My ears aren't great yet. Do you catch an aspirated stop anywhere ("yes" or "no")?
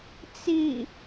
no